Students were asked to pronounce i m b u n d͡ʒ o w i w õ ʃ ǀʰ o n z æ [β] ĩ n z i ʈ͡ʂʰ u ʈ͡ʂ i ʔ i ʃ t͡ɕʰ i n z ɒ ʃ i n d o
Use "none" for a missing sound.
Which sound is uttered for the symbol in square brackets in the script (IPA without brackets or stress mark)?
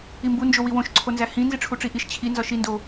h